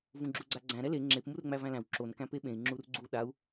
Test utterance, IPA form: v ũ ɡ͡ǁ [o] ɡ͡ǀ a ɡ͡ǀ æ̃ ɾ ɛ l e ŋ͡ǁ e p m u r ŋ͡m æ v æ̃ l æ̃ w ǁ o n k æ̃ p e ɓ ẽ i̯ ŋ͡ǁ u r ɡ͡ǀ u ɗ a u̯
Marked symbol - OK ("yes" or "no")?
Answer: no